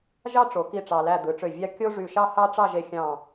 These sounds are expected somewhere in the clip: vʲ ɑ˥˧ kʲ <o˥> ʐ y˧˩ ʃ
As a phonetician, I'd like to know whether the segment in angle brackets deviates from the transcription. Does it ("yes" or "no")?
no